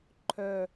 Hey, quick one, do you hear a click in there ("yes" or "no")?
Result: yes